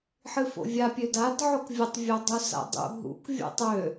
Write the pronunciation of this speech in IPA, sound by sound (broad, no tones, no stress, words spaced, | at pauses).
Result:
ħɨfo̰vʲa pʲødad ʕʊkvʲətˤ vʲodˤusa̰dˤṵ ɦṵk vʲo̰tˤø